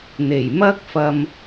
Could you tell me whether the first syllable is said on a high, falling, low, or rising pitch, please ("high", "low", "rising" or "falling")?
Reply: low